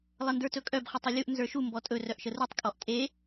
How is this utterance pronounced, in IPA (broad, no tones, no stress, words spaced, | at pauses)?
lˠəndə˞tɵkʼœb χətˤɨlʲuʔ nzə˞ʃu mbɔtʼɵ rœʔʃərutˤ kʼɔʔtʼe